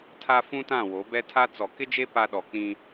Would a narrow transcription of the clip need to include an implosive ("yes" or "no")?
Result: yes